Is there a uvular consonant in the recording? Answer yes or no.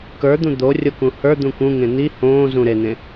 no